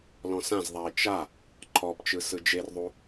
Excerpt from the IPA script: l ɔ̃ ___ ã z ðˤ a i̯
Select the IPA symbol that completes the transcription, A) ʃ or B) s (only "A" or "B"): B